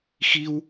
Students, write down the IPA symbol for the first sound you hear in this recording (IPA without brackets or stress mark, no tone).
x